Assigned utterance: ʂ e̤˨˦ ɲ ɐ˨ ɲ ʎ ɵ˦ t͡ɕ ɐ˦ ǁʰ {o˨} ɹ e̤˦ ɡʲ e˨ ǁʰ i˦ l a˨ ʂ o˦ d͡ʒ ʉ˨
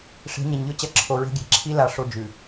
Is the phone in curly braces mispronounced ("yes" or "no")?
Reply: no